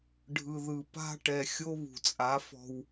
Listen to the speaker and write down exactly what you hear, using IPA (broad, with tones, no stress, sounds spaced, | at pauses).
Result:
ɖʱ ɯ˨ ð ɯ˨ p a̤˦ ʈ ɛ˨ xʲ o˦ β ṳ˨ t͡sʼ a˨˦ f ɔ̤˨ w